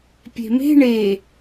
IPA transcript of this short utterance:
pʲ e̤ m e̤ ɳ e

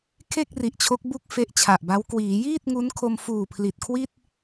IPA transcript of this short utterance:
kʰ e˥˩ k̚ r i˨˩ ʔ t͡ɕʰ o˦˥ k̚ b u˦˥ k̚ f e˦˥ ʔ t͡ɕʰ a˨˩ ʔ b a˦˥ w k w iː˩˦ j iː˥˩ t̚ ŋ u˦˥ n kʰ o˧ m f uː˨˩ pʰ l i˨˩ t̚ kʰ w i˥˩ t̚

